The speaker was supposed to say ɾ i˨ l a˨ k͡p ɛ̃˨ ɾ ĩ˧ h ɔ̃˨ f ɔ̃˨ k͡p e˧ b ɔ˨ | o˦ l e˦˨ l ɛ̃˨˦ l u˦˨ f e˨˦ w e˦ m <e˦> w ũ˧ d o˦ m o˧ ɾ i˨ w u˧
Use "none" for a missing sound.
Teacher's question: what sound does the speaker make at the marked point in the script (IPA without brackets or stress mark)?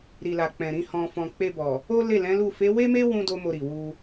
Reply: e˦